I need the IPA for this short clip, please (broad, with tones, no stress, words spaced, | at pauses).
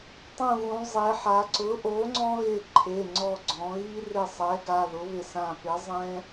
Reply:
tˤũ˧˩ɣũ˩˧zˤe˩˧ħa˩˧ ǀʊ˩˥ʔo˩˥ŋ͡ǀɔ̃˦ɣɪ˧˩ ǃʰe˩˧˩ŋ͡ǀɔ˧˩ɡ͡ǀɔ̃˩˧ɣi˦ rɪ˧˩sˤɛ˩˥ ɡa˩˧˩ðʊ˩˥βɪ˧˩sã˧˩ pɪ˩˥zˤɛ̃˦